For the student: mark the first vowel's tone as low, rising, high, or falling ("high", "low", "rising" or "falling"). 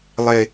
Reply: low